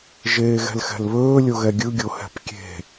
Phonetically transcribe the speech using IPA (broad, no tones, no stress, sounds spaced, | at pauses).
ʒ eː ɣ ɛ̤ l x ɛ̤ l β ɵː lʲ o ɣ ɛ ɡʲ ɯ ɡʲ o h ɛ̤ p kʲ e̤